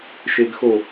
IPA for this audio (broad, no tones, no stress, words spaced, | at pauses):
ʃeɡxo